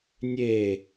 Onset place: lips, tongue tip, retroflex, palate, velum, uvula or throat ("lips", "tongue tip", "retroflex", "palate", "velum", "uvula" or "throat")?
tongue tip